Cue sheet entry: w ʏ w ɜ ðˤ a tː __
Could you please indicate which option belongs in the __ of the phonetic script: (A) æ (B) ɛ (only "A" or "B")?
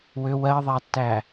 A